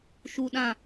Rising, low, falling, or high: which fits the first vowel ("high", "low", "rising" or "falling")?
low